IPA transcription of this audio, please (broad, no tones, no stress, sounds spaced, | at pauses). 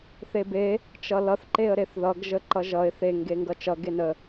θ e b e | t͡ʃ ʌ l ʌ θ ǃ e ə̯ ɾ e θ ð ʌ ɡ ʒ ə ǃ ʌ ʒ ʌ ɪ̯ θ e ŋ ɡ e ŋ ɡ ʌ t͡ʃ ʌ ɡ e n ə